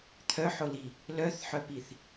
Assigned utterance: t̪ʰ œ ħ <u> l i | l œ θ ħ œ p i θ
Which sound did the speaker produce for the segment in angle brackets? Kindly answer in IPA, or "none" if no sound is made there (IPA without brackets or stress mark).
o